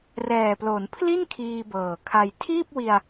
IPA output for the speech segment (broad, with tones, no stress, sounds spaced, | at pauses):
r ɛː˨˩ p l o˩˦ n pʰ l i˥˩ n kʰ iː˧ b ɤː˨˩ kʰ a˧ j tʰ iː˥˩ p̚ w i˧ a̯